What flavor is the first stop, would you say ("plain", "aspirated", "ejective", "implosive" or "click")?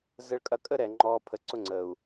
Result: ejective